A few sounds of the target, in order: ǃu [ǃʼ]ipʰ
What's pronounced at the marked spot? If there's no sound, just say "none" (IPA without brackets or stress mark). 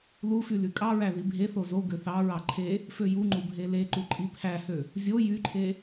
ǃʼ